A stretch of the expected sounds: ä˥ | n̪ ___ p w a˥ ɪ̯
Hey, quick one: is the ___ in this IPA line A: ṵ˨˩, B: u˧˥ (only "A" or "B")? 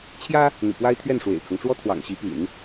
A